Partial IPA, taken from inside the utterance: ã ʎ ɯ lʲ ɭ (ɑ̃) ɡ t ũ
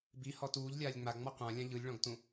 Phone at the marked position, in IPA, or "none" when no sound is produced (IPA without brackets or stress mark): ɔ̃